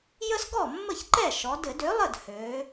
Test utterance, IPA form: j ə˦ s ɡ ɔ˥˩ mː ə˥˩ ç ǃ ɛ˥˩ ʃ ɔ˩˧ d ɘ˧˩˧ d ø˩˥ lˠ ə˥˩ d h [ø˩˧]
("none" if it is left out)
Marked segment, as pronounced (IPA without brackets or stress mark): ø˩˧